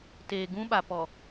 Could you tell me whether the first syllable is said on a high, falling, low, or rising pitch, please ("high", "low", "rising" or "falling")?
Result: low